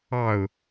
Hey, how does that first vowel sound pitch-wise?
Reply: falling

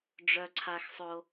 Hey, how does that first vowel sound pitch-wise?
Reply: high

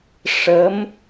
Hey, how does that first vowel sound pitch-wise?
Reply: rising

